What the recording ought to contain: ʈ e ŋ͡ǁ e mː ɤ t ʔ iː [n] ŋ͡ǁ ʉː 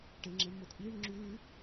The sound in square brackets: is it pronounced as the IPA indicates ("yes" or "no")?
no